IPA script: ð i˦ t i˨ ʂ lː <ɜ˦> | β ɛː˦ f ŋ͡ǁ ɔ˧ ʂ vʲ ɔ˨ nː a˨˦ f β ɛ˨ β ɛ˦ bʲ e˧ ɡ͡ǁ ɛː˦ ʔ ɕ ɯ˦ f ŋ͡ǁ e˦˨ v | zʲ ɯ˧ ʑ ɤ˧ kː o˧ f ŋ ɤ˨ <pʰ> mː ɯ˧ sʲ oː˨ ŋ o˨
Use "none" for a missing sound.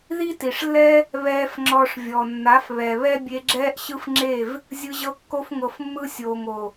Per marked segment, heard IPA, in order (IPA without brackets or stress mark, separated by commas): ɛ˦, f